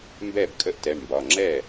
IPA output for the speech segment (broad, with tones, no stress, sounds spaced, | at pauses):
m b ɛ˥˩ b kʼ ə˥˩ ʔ t ɛ˩˧˩ ɳ m b ɒ˩˧˩ ŋ͡ǁ ɛ˥˩